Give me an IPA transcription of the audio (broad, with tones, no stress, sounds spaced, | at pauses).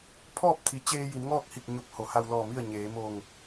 pʰ ɔː˥˨ p̚ t̪ʰ i˩˧ t͡ɕ eː˧ j i˩˧ n ŋ ɔː˥˨ k̚ h i˧˩ k̚ ɲ o˧˩ p̚ h o˩˧ h a˧ w l ɔː˧˩ m i˥˨ ə̯ ɲ eː˩˧ m o˧˩ ŋ